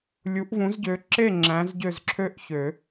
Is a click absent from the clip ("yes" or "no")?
no